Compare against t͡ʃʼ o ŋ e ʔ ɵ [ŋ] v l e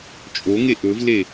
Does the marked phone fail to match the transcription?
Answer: yes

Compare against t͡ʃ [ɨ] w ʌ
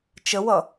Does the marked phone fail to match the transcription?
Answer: yes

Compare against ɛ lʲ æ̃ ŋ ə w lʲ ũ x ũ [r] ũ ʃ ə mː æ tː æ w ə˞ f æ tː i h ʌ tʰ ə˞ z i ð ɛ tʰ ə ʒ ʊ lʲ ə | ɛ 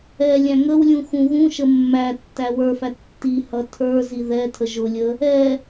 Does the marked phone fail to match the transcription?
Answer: yes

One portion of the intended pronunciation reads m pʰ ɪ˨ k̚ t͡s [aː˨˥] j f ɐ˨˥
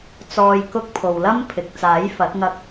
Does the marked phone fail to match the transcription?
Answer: no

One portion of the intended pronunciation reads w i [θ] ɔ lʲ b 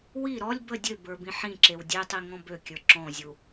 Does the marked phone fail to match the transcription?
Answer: yes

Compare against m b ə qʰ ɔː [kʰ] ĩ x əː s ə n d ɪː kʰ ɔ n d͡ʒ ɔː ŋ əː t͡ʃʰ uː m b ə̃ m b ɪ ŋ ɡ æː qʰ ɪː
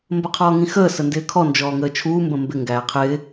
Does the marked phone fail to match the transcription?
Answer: yes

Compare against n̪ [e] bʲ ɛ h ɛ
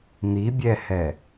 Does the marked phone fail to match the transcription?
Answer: yes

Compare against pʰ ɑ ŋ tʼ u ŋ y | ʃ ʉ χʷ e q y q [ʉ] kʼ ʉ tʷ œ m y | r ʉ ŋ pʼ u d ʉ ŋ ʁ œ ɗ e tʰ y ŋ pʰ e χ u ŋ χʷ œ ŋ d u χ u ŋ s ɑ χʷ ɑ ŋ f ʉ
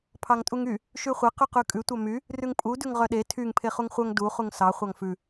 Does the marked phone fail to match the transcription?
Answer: no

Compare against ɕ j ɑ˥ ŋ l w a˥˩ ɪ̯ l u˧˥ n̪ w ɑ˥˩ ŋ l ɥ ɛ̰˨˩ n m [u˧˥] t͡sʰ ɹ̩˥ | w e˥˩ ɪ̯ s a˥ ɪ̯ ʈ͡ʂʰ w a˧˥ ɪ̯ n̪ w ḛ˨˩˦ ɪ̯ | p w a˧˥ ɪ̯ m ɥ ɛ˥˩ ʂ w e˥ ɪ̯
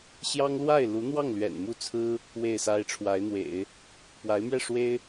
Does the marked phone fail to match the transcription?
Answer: yes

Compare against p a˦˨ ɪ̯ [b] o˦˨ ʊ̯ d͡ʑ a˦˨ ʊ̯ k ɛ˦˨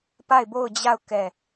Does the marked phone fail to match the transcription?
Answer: no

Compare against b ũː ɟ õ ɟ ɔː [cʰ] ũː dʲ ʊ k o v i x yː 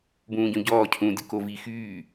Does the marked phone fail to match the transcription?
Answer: no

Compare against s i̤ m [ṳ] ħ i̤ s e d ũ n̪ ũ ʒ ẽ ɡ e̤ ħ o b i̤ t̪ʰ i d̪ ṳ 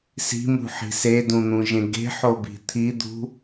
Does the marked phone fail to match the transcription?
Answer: no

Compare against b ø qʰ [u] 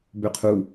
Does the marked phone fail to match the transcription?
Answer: no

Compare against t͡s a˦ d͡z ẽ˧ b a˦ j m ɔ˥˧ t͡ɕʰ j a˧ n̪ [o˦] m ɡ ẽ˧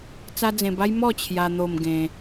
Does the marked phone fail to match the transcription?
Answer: yes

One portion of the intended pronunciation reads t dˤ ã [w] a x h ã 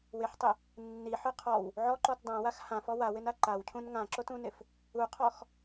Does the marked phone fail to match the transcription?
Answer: no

